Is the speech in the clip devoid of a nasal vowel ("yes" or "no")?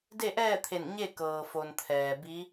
yes